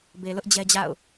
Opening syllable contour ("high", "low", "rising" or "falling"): low